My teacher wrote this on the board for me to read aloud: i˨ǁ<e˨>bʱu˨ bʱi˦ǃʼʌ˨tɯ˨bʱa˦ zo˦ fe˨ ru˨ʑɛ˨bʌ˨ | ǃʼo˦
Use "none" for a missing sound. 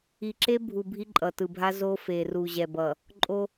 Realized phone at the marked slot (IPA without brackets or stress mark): e˦